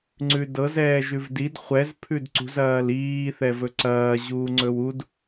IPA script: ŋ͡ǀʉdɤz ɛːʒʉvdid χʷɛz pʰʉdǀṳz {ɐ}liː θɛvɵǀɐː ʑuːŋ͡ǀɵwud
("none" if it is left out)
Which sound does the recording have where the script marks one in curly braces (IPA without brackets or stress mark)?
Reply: ɐː